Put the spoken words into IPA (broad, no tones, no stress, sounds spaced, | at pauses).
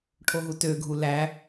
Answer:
ʈʰ o ɦ u t ø ɡʱ u l æ